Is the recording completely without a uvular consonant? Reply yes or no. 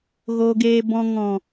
yes